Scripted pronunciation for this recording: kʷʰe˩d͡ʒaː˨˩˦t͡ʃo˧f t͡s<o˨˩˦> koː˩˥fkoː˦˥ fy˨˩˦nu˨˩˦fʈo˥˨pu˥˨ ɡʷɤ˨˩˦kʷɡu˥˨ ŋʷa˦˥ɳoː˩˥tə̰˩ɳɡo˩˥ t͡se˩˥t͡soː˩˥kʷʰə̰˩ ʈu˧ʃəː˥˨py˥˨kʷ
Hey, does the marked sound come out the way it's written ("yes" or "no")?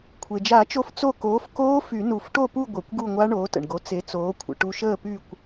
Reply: no